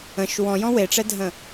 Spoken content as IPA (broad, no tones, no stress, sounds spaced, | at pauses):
ə̃ ʃ w ɔ̃ j ɔ̃ w e ʈ͡ʂ ɛ dʱ ə̃